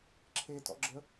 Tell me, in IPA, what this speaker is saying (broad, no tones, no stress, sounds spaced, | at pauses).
ǁʰ e t ɔ̰ ɡ͡ǁ ə